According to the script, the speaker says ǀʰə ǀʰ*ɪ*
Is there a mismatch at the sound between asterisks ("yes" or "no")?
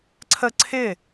no